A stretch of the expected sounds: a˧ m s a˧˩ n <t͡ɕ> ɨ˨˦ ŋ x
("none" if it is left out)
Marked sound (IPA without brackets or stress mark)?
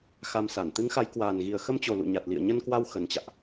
t̪